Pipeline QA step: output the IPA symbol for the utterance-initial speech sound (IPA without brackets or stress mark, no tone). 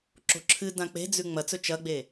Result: ǁ